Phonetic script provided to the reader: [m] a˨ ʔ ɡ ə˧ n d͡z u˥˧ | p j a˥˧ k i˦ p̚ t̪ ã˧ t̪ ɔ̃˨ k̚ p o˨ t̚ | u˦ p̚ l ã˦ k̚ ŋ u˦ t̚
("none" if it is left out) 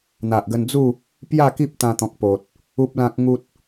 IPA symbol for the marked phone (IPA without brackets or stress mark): n̪